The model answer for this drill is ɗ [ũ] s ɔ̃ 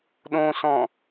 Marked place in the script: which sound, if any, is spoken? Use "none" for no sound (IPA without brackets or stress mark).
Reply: õ